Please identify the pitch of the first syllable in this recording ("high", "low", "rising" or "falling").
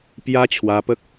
high